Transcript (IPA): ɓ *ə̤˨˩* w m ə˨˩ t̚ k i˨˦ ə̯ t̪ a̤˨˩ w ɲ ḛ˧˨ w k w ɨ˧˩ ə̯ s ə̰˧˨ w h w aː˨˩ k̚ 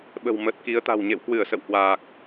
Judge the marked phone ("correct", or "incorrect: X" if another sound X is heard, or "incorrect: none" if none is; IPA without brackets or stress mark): correct